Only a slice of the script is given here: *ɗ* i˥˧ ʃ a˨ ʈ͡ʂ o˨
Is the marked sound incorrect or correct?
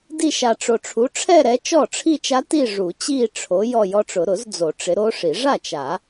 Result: incorrect